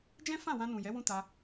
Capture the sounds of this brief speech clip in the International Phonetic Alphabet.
d͡ʒ ɛ̃˦ f ã˦˨ w ã˧ n ũ˨ j ɛ˨˦ w ũ˦ t a˧

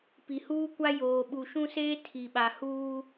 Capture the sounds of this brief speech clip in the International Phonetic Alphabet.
p i˨ h uː˦ kʷ a˦ j oː˨ ɓ u˨ ʃ ũ˦ s eː˦ tʰ i˨ ɓ a˨ h uː˦

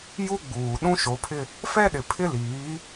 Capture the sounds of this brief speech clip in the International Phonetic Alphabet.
j u˦ ɡ͡b uː˨ ɗ ũ˦ ʃ o˨˦ pʰ ɪ˦ | f ɛ˦ ɗ ɪ˨ pʰ ɪ˦ l iː˨˦

